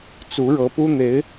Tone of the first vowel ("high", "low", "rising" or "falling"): rising